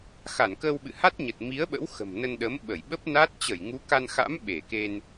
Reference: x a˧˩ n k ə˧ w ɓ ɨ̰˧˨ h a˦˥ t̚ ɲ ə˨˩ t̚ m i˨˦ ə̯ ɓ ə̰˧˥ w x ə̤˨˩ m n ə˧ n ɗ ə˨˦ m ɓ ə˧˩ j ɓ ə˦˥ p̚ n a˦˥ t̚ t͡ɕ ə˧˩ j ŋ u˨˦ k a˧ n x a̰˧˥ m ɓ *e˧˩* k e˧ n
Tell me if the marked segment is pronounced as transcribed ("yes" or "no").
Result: yes